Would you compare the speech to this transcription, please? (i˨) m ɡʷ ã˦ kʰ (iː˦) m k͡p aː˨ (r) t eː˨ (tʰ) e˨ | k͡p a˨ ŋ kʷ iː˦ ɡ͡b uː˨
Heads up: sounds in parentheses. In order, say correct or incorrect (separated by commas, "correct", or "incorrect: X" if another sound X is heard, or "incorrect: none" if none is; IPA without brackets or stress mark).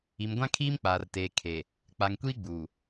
correct, correct, correct, incorrect: kʰ